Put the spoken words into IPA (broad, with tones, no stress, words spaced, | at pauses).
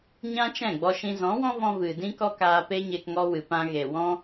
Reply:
ɲã˦t͡ʃɛ̃˦˨ ɡ͡bɔ˧ʃĩ˧ zɔ̃˨˦wɔ̃˦vɔ̃˧ vɨ˨ dĩ˦kɔ˦ kaː˧pe˦ɲe˧k ŋɔ˧wɨ˨ pã˧ɣe˨wɔ̃˦